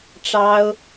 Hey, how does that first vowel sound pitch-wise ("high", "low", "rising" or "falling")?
high